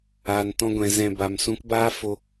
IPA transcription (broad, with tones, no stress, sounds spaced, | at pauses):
aː˨ n t ɔ̃˧ ɡʷ ɛ̃˨ z ɛ̃˨ b a˨ m s ũ˨˦ k b aː˦ f o˧